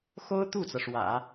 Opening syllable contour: high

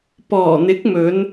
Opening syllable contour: low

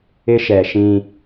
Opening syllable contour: high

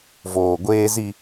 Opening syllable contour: low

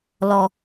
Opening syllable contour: low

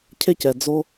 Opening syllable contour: high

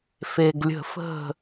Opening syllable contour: low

